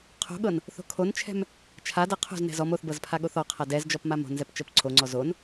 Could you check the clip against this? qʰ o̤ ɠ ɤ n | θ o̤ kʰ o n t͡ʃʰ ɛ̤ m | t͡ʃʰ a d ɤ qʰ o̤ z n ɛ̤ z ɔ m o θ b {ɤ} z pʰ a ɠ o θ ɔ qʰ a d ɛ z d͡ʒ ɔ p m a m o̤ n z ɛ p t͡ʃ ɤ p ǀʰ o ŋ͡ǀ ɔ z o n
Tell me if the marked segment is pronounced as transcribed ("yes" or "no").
yes